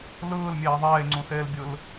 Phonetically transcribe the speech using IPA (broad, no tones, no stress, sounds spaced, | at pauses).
l ɯː l mʲ eː ðˤ eː ŋ͡ǀ ũ s eː l bʲ ɯ l